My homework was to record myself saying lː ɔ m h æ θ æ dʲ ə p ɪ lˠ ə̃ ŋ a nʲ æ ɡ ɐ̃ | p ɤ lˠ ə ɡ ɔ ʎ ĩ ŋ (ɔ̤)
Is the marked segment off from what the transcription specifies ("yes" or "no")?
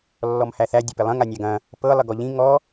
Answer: yes